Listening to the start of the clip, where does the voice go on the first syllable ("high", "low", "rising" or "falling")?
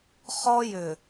high